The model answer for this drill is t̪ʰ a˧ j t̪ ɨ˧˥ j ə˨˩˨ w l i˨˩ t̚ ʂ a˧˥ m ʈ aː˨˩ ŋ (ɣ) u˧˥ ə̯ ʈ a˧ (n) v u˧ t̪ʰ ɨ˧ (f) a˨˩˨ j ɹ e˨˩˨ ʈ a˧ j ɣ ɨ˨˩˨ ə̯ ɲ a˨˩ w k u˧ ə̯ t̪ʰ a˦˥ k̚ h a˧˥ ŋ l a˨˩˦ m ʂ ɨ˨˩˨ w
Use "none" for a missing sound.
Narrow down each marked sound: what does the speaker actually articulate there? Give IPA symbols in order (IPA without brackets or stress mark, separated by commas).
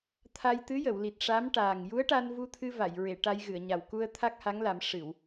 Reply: j, n, v